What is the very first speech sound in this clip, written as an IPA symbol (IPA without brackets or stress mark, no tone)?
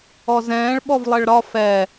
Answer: ɔ